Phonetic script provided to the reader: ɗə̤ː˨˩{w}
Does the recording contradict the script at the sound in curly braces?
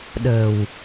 no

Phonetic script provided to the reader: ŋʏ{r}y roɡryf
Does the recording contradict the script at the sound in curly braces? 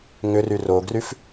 no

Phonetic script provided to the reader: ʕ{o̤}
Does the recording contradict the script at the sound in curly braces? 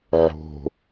no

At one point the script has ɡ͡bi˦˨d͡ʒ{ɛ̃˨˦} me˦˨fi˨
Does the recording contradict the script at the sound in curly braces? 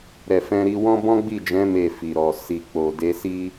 no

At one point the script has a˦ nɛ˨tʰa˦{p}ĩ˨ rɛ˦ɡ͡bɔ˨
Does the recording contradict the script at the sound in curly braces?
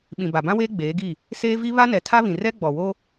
yes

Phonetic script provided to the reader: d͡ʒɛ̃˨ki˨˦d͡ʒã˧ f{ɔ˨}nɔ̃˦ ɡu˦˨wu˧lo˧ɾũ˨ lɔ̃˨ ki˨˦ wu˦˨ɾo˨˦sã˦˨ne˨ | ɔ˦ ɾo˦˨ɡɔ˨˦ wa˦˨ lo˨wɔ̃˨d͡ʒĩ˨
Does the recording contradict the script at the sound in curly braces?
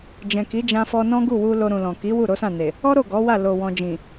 yes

